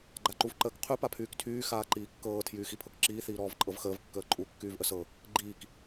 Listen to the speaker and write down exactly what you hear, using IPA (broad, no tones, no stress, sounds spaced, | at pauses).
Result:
ɡ͡ǃ a ǃ u v ǃ əː k qʰ y p a pʰ yː k tʰ yː x aː ǃ iː kː ɤː tʰ j yː x i pʰ ɤ k ǁ iː θ iː ɾ ɔː v ǃʼ ɤ v x əː v kː əː ǃʼ u kː yː v ʔ ə s ɤ | ɡ͡ǃ iː k